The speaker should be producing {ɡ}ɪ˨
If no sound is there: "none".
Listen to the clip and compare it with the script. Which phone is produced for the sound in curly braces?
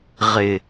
ʁ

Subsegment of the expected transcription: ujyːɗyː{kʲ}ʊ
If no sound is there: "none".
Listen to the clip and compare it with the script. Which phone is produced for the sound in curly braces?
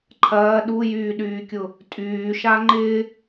kʲ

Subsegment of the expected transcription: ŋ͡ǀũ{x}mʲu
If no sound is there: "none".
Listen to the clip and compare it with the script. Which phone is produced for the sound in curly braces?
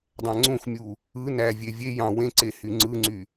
x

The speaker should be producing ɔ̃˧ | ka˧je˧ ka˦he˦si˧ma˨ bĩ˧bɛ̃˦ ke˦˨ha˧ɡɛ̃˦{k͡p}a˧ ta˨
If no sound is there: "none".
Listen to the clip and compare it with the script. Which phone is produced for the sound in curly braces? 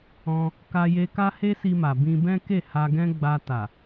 ɡ͡b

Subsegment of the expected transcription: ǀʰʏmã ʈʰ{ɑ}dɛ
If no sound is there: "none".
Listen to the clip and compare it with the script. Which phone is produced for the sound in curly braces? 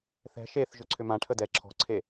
ə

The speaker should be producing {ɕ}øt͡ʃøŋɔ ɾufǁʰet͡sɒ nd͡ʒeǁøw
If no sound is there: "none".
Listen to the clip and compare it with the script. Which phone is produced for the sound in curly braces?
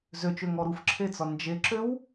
z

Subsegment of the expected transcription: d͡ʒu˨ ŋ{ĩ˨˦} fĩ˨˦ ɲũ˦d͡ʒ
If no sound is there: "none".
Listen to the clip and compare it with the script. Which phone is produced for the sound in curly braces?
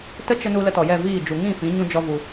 ĩ˦˨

